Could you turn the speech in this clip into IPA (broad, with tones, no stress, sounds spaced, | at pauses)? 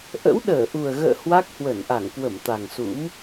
ʔ ə̰˧˥ w ɗ əː˧˩ ʔ u˨˩ ə̯ ɣ ə̰ː˧˨ h w a˦˥ k̚ h w ə˧˩ n ʔ a˧˩ ŋ k w ə˧˩ m t̪ a˨˩ ŋ s ṵ˧˥ m